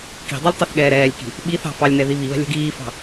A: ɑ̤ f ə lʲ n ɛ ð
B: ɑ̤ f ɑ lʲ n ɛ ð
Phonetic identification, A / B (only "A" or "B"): B